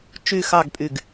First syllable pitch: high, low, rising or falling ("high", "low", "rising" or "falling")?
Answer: falling